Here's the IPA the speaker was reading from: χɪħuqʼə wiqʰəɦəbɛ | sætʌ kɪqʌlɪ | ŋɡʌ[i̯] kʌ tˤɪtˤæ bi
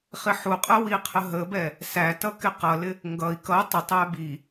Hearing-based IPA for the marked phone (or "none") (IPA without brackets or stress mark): i̯